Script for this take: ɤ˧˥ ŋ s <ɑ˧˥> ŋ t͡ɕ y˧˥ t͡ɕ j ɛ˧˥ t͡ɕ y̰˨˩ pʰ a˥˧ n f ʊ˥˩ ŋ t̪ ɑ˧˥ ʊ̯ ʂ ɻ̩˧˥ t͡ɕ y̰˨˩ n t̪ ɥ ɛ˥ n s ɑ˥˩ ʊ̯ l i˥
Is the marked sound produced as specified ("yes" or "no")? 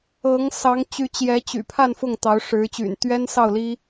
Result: yes